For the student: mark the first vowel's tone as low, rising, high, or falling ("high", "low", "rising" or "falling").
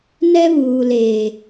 high